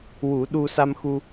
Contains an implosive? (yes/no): yes